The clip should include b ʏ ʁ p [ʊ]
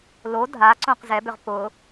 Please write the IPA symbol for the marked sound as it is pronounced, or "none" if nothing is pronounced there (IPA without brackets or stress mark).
ʊ